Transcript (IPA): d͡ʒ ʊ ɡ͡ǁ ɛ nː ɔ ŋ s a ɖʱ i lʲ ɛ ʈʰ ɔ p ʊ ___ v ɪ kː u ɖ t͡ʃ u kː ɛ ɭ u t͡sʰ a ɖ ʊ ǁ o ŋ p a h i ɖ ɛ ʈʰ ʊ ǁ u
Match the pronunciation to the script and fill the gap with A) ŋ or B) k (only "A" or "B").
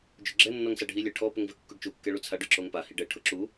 A